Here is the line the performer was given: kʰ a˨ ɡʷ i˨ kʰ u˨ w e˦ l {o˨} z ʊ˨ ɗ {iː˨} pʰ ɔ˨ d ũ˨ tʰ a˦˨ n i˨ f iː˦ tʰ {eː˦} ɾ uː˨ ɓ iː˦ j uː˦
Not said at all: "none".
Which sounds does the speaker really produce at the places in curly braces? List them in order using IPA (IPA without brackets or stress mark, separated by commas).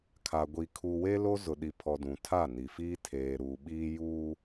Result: o˦, i˨, eː˨